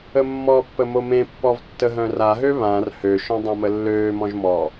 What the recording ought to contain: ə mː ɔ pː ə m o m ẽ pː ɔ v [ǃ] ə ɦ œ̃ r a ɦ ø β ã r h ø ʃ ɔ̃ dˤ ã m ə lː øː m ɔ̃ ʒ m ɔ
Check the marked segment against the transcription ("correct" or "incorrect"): incorrect